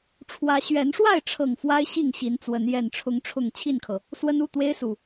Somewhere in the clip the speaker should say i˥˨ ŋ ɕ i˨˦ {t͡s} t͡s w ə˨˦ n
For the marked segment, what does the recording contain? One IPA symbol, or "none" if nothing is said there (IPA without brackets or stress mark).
n